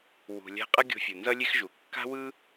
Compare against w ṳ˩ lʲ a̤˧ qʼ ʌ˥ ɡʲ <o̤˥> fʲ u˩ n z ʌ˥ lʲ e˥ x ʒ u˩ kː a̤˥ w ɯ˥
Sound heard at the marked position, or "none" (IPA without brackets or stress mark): o̤˧